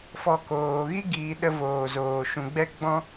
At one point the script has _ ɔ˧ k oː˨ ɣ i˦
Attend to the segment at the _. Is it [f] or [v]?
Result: f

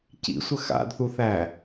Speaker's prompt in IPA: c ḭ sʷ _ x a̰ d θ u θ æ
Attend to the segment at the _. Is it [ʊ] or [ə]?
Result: ə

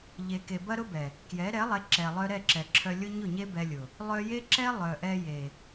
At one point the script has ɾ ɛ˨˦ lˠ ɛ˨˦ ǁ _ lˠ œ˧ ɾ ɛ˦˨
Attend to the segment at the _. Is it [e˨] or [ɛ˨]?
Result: ɛ˨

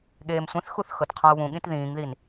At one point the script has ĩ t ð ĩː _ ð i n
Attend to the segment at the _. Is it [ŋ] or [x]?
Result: ŋ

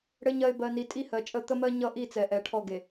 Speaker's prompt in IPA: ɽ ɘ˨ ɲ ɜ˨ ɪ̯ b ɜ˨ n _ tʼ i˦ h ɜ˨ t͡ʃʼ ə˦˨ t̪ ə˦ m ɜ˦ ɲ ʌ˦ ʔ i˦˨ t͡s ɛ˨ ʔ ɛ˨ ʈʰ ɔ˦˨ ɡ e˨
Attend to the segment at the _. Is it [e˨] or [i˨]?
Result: i˨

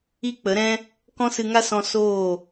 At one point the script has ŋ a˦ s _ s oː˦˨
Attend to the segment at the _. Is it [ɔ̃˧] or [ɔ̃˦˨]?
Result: ɔ̃˧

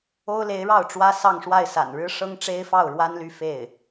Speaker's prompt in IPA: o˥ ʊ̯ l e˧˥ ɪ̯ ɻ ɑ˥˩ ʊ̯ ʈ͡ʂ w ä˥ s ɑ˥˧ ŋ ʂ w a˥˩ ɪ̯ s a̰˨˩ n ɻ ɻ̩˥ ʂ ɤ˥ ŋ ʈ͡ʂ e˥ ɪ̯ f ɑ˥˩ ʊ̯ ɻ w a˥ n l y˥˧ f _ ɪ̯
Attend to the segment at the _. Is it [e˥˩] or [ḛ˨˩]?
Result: e˥˩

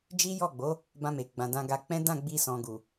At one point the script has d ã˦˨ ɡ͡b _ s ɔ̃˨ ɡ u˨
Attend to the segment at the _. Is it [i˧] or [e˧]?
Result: i˧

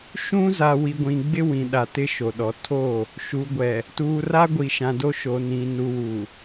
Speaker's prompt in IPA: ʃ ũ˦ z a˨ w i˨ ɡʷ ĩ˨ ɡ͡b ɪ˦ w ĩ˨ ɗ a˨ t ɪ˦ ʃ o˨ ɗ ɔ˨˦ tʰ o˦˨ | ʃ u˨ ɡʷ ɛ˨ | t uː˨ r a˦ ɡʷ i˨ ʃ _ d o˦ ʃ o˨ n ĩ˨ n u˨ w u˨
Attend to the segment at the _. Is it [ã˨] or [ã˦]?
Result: ã˨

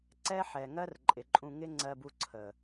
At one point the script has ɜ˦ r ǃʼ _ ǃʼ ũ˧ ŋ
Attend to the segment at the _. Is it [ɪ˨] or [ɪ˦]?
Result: ɪ˨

